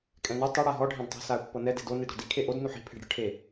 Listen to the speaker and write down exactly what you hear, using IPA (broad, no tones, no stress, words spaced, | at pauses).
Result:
kʼɛ̃nɯ tˤɯ ɽaɦɔ ɖʱɛ̃dtˤi̤ saə̯pːɤnɛ de̤do nidɽɔ̤di kʰeʔod nuħi̤ pʰe̤ɖɽɯʈʰe